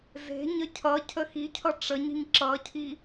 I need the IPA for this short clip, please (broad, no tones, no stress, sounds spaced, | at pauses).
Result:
z e̤ ɲ ə cʰ ʌ cʰ ə x i cʰ ʌ ʈ͡ʂ ə ɲ i̤ ɲ ǁ ʌ cʰ i